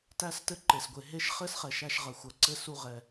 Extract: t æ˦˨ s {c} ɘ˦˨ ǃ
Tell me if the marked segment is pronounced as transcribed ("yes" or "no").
no